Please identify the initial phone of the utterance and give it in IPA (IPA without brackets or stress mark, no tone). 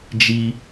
d͡ʒ